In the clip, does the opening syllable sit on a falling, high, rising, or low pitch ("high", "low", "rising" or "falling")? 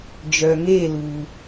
low